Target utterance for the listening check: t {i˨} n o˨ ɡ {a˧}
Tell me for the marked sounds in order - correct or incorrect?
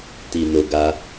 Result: correct, correct

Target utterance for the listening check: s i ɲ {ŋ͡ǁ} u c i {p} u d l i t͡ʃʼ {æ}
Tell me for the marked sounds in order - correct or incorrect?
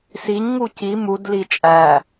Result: incorrect, incorrect, correct

